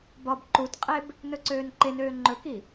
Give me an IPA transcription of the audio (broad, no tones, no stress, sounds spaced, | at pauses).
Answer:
b ɒ b ǃ u t qʼ e b | n ɵ ǀ øː n ǃ e n øː ŋ͡ǃ ɵ k i